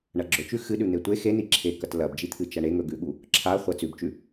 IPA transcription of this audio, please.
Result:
ɳ ɐ ɡ͡ǁ ɵ t͡ʃ ʉ x ɨ ɗ ʉ n̪ e tʷ e x e n i ǁʰ e k ɐ t l ɐ b d͡ʒ i t̪ʰ ɨ t͡ʃ ɐ ɳ e ŋ ɵ ɡ ʉ ɠ u | ǁʰ a χʷ ɐ t͡s ʉ b t͡ʃ ʉ

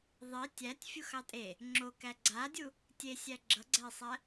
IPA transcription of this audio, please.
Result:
ðˤ i tʲ æ tʲ fʲ u x ɑ tʼ e | ŋ͡ǁ o k æ ɡ͡ǀ a dʲ u | tʲ e sʲ æ ɡ͡ǁ ʌ ɡ͡ǀ æ i̯ sˤ æ

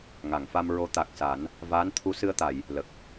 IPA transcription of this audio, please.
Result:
ŋ a˨˩˨ ŋ f a˧ m ɹ o˧˥ t̪ a˨˩ k̚ s a˨˩˦ n | v aː˧˥ n t̪ʰ u˧˥ s ɨ˧ ə̯ t̪ a˨˩˨ j | l ə˨˩ k̚

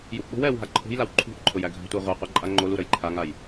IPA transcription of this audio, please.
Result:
j u ʔ ɓ o̤ w ɛː w ɦ a ǃʰ o̤ j l a w ǃʰ ṳ ʔ ǃʰ ʊ j æ ɡʱ a̤ tʷ ɛ ʁʷ ɛ qʷ ɛ ǃʼ a ŋ͡ǃ o l u ɾ ə j ǃʰ a ŋ a j

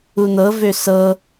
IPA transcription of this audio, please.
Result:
u n̪ ɤ v ø s ɤ

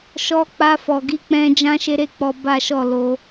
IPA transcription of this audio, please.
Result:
ʃ ɔ˧ k͡p a˧ f ɔ˨ ɡ i˧ k͡p ɛ̃˧ d͡ʒ ã˦ ʃ e˦ ɾ e˦˨ k͡p ɔ˧ b a˦ ʃ ɔ˦˨ l o˧

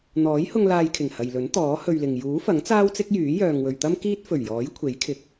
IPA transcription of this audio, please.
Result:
n̪ ɔː˨˥ j h ʊ˧ ŋ l aː˧ j kʰ ɪ˨˩ ŋ h ɐ˨ j l ɵ˨˥ n t̪ ɔː˨˥ h ɵ˧ ɥ l ɪ˨ ŋ j uː˨˥ f ɐ˨˥ ŋ t͡s aː˥ w t͡s ɪ˥ k̚ j yː˨˥ j œː˨ ŋ w ɵ˨ ɥ t̪ ɐ˥ m k iː˥ t̚ f ɵ˨˩ ɥ j ɔː˨˥ j kʷʰ e˨˥ j kʰ ɪ˨ k̚

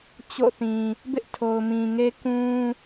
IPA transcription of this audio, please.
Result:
t͡ɕ o̰˦˨ θ ĩ˨ | b ɪ˦ ʔ tʰ o˨ ʊ̯ m ĩ˨ ŋ e˦ k ũ˦

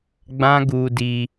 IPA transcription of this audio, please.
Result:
ɡ͡b ã˦ ɡ u˧ d i˧

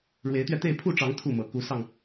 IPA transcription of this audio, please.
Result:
ɻ w e˨˦ ɪ̯ t̪ ɥ ɛ˧ t̪ e˥˨ ɪ̯ pʰ u˥˨ ʈ͡ʂ ɑ˨˦ ŋ t̪ʰ u˥˨ m ɤ˨˩ k u˨˦ s ɑ˧ ŋ

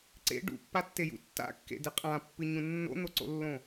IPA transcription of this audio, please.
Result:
ǀ ḛ ɖ ṵ pː a tː e j ṵ tː a̰ kː ḛ d ɨ qʼ ã pː ɨ ɲ ũ nː o̰ n̪ o ǀ o̰ lː õ

